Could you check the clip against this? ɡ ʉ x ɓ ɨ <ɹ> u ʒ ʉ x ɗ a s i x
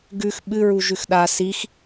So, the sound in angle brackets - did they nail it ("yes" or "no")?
yes